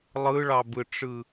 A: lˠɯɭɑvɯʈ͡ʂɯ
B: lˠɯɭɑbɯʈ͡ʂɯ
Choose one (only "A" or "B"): B